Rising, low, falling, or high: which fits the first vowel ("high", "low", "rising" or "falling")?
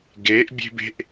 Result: rising